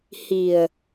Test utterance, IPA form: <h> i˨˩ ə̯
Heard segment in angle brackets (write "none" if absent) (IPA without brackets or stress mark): h